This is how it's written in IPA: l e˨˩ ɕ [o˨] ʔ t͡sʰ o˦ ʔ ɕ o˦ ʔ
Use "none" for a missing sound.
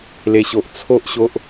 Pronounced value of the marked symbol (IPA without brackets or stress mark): o˨